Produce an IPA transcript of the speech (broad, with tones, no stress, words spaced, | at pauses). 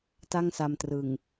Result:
ta˥˩ŋsa˧mtrɯ˨˩ŋ